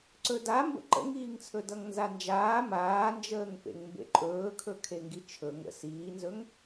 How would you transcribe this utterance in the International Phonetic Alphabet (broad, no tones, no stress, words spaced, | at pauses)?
ǀɵdambə̰ ǃə̰ŋiːŋt͡sʰɵ dʌŋnzand͡ʒaː maːnd͡ʒəːŋ pḛŋmbḛǃʼɵːkʰɵ kʰeŋɡit͡ʃʰɵ ŋə̰ siːnzɵŋ